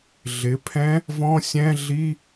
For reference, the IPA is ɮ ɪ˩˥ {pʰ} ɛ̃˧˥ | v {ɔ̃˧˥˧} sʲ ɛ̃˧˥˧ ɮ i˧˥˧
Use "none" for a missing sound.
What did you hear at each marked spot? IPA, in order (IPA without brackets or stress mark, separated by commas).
pʰ, ɔ̃˧˥˧